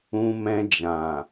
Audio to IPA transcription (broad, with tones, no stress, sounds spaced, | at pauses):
ũ˧ m ɛ̃˧ d͡ʒ ã˨